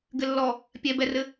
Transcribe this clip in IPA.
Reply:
ɡ ɘ lː ɔ | pʲ ɛ b ɛ r ɘ

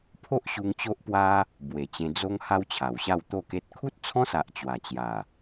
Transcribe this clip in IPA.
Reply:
pʰ o˦ ʔ ɕ u˧ ŋ t͡ɕ o˦ ʔ p w a˦ | b w e˨˩ t͡ɕ ẽ˧ d͡z o˦ ŋ h a˦ w t͡ɕʰ a˨˩ w ɕ a˥˧ w t̪ o˥˧ k e˦ t̚ kʰ u˦ t̚ t͡sʰ ɔ̃˦ s a˨ ʔ t͡ɕ w a˨˩ t͡ɕ j a˨˩

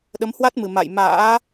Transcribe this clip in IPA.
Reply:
ɗ ə˨˦ m h w a˦˥ t̚ m ɨ˨˩ m a̰˧˨ j m a̰ː˧˥

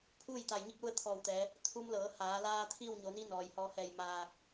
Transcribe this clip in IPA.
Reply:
pʰ uː˥˨ j t̪ a˧˩ j ɲ i˥˨ k̚ l u˥˨ ə̯ t̪ʰ ɔː˧˩ w t̪ ɛː˩˧ | t̪ʰ u˧ m l ɤː˩˧ h aː˩˧ l aː˧ t̪ʰ iː˥˨ w ɲ o˩˧ n i˧˥ n ɔː˩ j h ɔː˧ h ɛː˧˩ j m aː˧˩ k̚

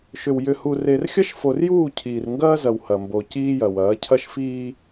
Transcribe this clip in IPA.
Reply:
ʃ ʏ˨ w j ʏ˨ h u˨ r e˨ r xʲ ɐ˦ ʃ f o˨ r j uː˦˨ cʰ iː˨ r ŋ ɡ ɐː˦ z ɐ˨ w h ɐ˨ m b o˨ c iː˦ j ɐ˨ w ɐː˨˦ cʰ ɐ˦ ʃ f iː˦

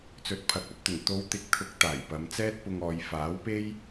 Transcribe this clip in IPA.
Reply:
t͡s ɵ˨˥ t̚ pʰ ɐ˨˥ k̚ ɐ˥ p̚ t̪ ɵ˨˩ n t̪ o˨˧ w t̪ ɪ˨˥ k̚ t̪ʰ ʊ˨˥ k̚ t̪ aː˨˩ j p ɐ˨˧ m t͡s ɛː˥ t̚ p ʊ˧ ŋ ɔː˨˧ j f aː˨˥ w p e˥ j

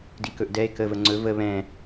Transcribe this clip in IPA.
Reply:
d i k ɵ ʔ d ɛ e̯ k ə v ə ŋ͡ǀ ɵ v ə β ɛ̃

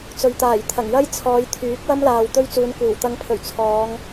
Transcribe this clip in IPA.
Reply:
t͡s ɵ˨ ɥ t̪ aː˨˩ j t̪ʰ ɐ˨˩ ŋ j ɐ˥ j t͡sʰ ɔː˨˧ j t̪ʰ yː˨˥ k̚ w ɐ˥ m l aː˨ w t̪ ɵ˥ ɥ t͡s uː˨˧ n kʷ iː˨˩ w t̪ ɐ˨˧ ŋ pʰ ɵ˨˩ ɥ t͡sʰ ɔː˨˧ ŋ

